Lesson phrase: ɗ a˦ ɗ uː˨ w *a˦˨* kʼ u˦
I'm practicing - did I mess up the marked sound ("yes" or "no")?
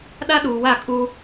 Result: no